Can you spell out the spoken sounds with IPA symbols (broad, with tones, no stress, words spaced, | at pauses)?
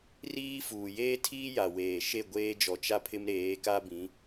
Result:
riː˦fuː˨ jeː˦tʰiː˦ja˨weː˨ ʃe˦˨ɡʷeː˦d͡ʒɔ˨ t͡ʃa˦pʰɪ˦mɾeː˨˦ ka˦bĩ˨˦